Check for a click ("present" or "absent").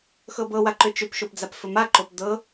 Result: present